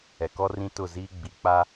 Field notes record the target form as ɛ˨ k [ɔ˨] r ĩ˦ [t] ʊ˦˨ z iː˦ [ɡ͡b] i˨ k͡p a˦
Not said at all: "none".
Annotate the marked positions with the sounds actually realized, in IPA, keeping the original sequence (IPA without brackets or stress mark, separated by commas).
ɔ˦, t, ɡ͡b